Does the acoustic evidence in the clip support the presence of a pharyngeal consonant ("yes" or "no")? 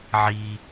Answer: yes